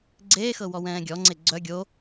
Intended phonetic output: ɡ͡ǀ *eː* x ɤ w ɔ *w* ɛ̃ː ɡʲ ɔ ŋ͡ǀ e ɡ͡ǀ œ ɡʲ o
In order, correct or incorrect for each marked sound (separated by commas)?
correct, correct